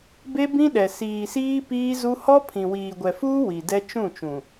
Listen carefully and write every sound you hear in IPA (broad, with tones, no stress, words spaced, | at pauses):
be˦bĩ˦ɗɛ˨ siː˨siː˦ piː˦zu˦ hɔ˦pʰĩ˨wiː˨ ɡʷɛ˨fuː˦ wi˨dɛ˦ t͡ʃũ˦˨t͡ʃũ˨